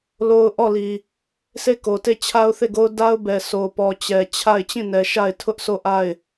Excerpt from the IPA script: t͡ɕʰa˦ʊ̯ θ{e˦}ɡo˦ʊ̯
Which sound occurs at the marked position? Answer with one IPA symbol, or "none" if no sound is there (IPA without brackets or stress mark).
e˦˨